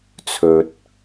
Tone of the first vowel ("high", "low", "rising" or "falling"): low